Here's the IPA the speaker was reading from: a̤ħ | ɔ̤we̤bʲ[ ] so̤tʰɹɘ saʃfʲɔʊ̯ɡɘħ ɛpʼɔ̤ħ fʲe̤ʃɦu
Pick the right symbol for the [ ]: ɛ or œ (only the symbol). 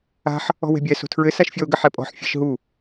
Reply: ɛ